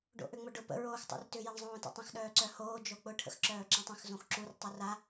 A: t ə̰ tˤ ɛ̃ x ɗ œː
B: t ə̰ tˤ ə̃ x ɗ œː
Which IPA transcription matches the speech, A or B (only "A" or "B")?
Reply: B